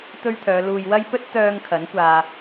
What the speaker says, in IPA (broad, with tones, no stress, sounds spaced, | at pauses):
t̪ ɵ˥ ɥ t̪ʰ œː˨˧ l uː˨ j w ɐ˥ j p ɵ˥ t̚ t̪ œː˧ ŋ kʰ ɐ˨˥ n kʷ aː˧